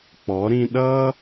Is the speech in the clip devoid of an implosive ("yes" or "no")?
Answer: no